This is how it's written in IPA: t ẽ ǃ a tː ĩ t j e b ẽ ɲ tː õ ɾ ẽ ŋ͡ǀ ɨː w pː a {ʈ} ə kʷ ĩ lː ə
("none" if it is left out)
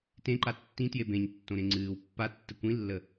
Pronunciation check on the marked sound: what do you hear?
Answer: tː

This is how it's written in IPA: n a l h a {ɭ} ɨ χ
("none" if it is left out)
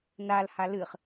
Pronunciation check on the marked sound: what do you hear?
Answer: l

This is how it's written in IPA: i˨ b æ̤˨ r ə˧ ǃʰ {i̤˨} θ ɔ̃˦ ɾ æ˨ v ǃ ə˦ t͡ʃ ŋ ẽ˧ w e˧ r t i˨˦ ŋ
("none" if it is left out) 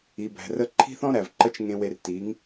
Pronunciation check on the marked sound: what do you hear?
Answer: i̤˦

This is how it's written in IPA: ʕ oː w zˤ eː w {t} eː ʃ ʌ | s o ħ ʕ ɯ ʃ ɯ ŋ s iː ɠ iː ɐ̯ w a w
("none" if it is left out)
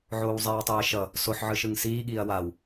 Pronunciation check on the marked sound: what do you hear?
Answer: tˤ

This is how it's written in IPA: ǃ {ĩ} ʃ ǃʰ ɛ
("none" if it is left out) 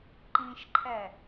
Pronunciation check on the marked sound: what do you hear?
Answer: ĩ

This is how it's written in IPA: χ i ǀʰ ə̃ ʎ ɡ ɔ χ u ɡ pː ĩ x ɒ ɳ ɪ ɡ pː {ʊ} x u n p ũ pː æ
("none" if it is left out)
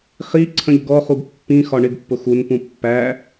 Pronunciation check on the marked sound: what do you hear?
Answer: ʊ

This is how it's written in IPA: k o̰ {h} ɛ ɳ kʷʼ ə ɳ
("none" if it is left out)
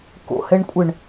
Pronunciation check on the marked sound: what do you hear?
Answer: h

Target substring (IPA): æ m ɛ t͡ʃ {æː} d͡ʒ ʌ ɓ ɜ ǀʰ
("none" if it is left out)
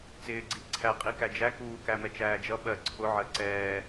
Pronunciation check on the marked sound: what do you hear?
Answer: æː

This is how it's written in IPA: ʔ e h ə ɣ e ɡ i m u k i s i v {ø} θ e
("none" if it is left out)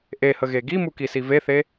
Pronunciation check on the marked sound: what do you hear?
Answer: e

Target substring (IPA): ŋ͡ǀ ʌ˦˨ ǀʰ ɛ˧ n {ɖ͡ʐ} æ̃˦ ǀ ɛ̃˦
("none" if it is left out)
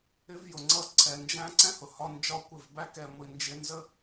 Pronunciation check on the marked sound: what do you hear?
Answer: d͡ʒ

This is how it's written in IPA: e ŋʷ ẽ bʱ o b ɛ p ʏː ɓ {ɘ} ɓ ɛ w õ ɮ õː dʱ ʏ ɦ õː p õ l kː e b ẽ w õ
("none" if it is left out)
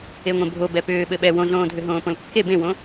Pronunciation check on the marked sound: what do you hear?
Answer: ɘ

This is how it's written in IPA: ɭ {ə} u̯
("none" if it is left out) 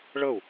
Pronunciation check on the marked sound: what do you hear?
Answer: ə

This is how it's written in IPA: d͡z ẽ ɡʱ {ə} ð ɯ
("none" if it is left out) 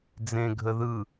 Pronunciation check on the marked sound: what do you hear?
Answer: ə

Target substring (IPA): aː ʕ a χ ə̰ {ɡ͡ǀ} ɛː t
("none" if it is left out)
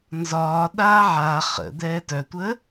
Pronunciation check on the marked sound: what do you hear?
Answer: d̪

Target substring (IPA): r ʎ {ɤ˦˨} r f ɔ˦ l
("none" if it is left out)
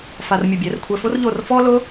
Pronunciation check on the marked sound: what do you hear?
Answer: o˦˨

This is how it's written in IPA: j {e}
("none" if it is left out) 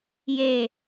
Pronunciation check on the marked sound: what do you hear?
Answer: e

